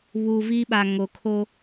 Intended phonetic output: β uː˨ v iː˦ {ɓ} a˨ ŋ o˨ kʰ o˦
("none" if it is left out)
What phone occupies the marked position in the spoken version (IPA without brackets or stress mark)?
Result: ɓ